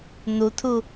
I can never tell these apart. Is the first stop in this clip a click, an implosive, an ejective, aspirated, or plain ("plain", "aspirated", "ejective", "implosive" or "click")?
aspirated